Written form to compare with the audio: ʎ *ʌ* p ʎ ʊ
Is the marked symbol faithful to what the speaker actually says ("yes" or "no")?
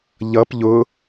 yes